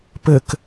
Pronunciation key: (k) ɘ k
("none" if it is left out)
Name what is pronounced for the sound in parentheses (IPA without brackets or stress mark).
p